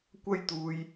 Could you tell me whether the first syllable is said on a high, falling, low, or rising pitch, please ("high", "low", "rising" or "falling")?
high